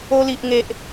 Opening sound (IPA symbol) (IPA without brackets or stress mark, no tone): o